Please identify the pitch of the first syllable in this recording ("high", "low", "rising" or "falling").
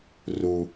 low